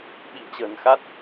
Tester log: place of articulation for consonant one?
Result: labial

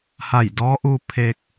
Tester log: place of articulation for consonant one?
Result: glottal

